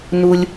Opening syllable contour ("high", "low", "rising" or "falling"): low